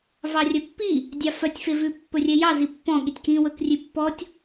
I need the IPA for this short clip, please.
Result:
v ɑ rʲ œ pː i | dʲ ɑ f œ tʲ f e v ʉ pː ɵ rʲ ɛ j ɑ z i pː ɔ̃ ɠ i tʲ k ĩ w ɵ k rʲ ʉ pː ɔ tʲ

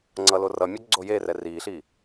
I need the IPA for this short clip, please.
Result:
ŋ͡ǀ ʌ l o r ʌ mʲ ɔ ɡ͡ǀ o j e r ɛ r i ɬ i

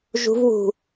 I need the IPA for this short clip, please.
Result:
ʒ ṳ v w ṳ

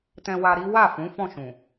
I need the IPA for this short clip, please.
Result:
t ɛ̃˧ w a˧ ɾ i˦ w a˦˨ f ũ˨˦ f ɔ̃˦˨ ʃ ũ˨

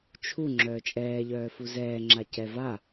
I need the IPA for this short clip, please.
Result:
t͡ʃʰ u ŋ͡ǁ œː t͡ʃʼ ɛː ʎ œː f u z ɛː ŋ͡ǁ a c ɛ v a

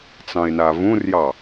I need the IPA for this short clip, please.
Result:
t͡s ɑ̃ ɪ̯ n a v ũ r j ɑ

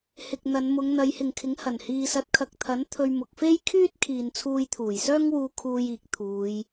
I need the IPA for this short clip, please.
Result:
h ɪ˨ k̚ n̪ ɐ˨˧ n m ʊ˨˧ ŋ n̪ ɐ˨˧ j h ɪ˨ ŋ kʰ ɪ˨˥ ŋ h ɐ˨˩ n h iː˨ s ɐ˨˥ t̚ kʰ ɐ˨ k̚ t̪ʰ ɐ˨˥ n t̪ʰ ɵ˧ ɥ m ʊ˨ k̚ f e˥ j kʰ yː˥ t̚ kʰ iː˨ n t͡sʰ uː˧ j t̪ʰ uː˨˩ j s œː˥ ŋ w uː˧ kʰ uː˧ j iː˨ k̚ t̪ʰ uː˨˧ j

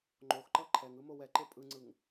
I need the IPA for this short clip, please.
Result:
ŋ͡ǃ o x ǃ ʌ ǃʰ ɛ ŋ ɯ m o w ɛ ǃ e pʼ ɯ ŋ͡ǀ ɯ ŋ

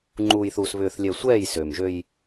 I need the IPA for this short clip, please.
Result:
ŋ͡ǃ uː˨ j θ uː˨ s β ʏː˨ θ lʲ ɛ˨ sʷ ɛː˦˨ j s ø˨ m ʒ ø˦ j

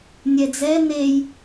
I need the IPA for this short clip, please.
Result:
nʲ ɛ d͡z ɛ n̪ e j

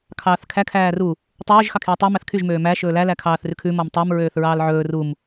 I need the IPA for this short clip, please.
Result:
kʰ ɑː θ kʰ æ kʰ æː r u | tˤ ɵː ʒ x ɑ kʰ j ɔ tˤ o m æ θ kʰ y ʒ m øː m æ ʃ ɵː l æ l æ kʰ ɑː θ r ʉ kʰ ʉ m ɔ m tˤ ɛ m ɹ øː θ ɹ ɑː l ʕ ɵː r u m

